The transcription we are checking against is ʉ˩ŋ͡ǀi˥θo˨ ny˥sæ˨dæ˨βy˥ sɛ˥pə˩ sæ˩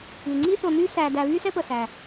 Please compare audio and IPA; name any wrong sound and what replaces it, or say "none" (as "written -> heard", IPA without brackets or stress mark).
none